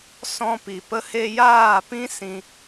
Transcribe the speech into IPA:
sɔ̃˦ pi˨pə˦he˦ jaː˦˨pĩ˦ sĩ˦

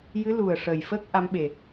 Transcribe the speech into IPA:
jɨ˧˥lu˨˩ə̯ʂəː˨˩j fə˦˥k̚ ʔa˧˥mɓe˨˩

